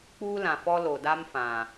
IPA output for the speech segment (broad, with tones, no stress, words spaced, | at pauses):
k͡puː˦lã˨ fɔ˦lo˨ da˦mfã˨